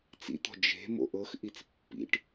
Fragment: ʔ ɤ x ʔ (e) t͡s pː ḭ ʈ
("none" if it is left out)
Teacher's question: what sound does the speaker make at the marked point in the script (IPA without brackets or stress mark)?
i